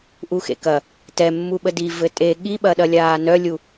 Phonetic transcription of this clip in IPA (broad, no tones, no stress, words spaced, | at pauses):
ʔuxḛkɐ | tɛmːu ɓədi vɘtʼe ɠiɓɐɗɐ lʲaːnœlʲu